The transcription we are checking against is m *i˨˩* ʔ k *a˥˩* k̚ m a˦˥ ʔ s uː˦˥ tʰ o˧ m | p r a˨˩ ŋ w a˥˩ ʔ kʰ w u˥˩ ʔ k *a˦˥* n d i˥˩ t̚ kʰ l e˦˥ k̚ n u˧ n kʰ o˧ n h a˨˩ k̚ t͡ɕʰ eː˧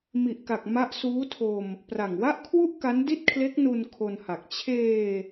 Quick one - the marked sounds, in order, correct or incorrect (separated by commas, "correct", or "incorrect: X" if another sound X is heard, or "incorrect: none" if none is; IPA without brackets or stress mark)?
correct, incorrect: a˨˩, correct